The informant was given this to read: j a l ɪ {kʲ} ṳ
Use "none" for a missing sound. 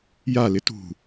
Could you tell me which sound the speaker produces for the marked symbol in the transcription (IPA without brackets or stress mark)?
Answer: t